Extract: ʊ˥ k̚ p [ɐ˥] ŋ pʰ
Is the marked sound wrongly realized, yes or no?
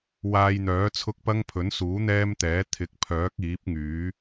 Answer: no